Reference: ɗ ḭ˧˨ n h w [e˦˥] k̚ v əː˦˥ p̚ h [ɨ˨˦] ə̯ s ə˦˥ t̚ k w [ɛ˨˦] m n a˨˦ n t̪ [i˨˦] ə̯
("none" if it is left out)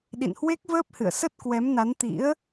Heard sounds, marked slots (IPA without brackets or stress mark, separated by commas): e˦˥, ɨ̰˧˨, ɛ˨˦, ḭ˧˥